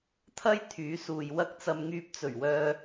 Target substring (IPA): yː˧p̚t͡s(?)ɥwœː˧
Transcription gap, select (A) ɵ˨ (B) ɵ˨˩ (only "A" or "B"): B